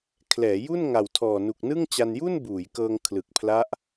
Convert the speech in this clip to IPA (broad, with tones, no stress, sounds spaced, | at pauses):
kʰ l ɛː˩˦ j u˥˩ n ŋ a˨˩ w tʰ ɔː˨˩ n u˨˩ k̚ n ɯ˥˩ ŋ t͡ɕ a˧ n j u˥˩ n b uː˩˦ j k ɤː˧ ŋ kʰ l ɯ˨˩ k̚ pʰ l a˦˥ ʔ